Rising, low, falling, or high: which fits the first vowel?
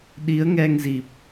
rising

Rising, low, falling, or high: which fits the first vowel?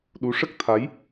rising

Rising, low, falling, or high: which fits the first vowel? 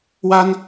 high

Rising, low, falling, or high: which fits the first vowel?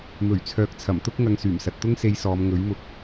low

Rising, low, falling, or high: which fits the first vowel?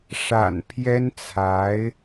low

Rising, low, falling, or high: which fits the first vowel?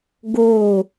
falling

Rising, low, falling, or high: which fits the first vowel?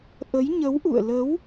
rising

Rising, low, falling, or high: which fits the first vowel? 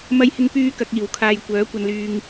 high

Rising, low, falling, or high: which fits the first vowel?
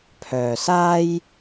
low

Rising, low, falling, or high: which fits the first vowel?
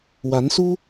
rising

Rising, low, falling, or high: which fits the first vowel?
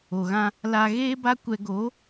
low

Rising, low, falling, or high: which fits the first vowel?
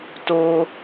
high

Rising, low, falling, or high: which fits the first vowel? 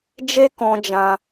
high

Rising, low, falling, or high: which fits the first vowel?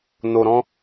low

